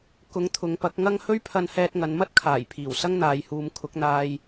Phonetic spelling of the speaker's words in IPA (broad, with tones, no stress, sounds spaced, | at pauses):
k ʊ˨˥ ŋ t̪ʰ ʊ˨˧ ŋ p ɐ˨˥ k̚ ŋ ɐ˥ ŋ h ɵ˥ ɥ pʰ ɐ˧ n h ɛː˧ t̚ ŋ ɐ˨˧ n m ɐ˥ t̚ kʰ aː˨˩ j pʰ iː˨˩ w s ɐ˥ ŋ n̪ aː˨ j h uː˨ m kʰ ʊ˨˥ k̚ n̪ aː˧ j